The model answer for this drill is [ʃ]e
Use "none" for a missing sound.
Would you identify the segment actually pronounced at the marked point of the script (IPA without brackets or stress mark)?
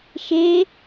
ʃ